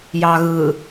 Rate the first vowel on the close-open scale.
open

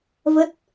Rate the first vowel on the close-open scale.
mid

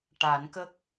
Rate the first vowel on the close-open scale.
open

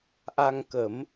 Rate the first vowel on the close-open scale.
open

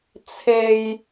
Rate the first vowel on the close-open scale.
mid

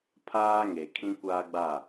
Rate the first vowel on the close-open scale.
open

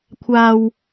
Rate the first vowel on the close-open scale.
open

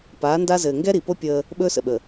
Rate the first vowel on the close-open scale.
open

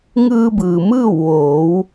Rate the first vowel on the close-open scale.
close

